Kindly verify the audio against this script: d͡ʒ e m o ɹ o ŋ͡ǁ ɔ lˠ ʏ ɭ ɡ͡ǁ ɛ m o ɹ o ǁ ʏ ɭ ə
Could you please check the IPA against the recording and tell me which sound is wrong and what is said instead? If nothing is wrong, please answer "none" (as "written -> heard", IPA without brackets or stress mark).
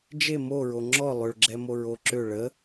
none